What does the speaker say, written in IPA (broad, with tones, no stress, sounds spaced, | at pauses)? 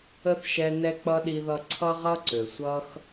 ə˥ θ ʃ ɛ˦ n ɛ˥ k͡p ʌ˥ ɗ i˦ ð ʌ˦ ǀʰ ʌ˥ ʁ ʌ˥ ǀ ø˩ sʷ ʌ˦ x